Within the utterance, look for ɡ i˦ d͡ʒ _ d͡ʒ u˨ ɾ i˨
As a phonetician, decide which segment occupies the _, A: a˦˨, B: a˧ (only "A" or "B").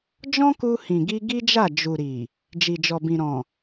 A